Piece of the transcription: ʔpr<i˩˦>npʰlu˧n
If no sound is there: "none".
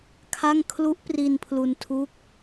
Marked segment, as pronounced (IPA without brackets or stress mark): i˧